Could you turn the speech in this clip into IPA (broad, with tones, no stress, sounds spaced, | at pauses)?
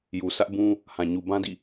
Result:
j u˨ s ä˦ ʔ b ũ˦ | h ã˨ ɲ u˨ b ã˦ d ḭ˦˨